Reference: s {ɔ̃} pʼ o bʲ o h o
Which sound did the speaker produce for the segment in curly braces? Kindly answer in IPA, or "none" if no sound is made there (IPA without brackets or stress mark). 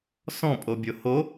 ɔ̃